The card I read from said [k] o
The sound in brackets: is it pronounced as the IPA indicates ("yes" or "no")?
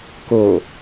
yes